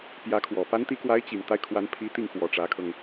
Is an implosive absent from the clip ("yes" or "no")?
yes